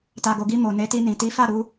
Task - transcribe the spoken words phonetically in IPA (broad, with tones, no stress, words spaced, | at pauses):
ta˨ɡo˨ɡi˧ mo˨ne˨˦ti˧nĩ˨ ti˨˦fa˦˨ɾu˧